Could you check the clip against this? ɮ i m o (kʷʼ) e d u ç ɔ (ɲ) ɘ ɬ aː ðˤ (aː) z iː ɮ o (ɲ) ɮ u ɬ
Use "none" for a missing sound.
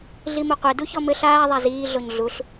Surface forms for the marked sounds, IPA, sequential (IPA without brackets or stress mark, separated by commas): qʷ, m, a, ɲ